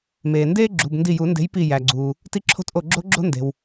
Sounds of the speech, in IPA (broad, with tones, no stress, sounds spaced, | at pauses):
m eː˩ n d eː˦ ɡ͡ǁ ṳ˩˧˩ b n d i˧˩ j u˨˩˦ n d e̤˨˥ j p i˧˩ j æ˩ ɡ͡ǀ uː˩ | t i˦ ǁʰ o̤˦ t ʔ o˧˩ ɡ͡ǁ o̤˦ ɡ͡ǁ o̤˦ n d e̤˩ w